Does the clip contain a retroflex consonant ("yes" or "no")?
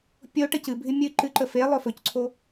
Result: yes